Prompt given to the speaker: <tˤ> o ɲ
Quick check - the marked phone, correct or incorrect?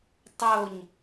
correct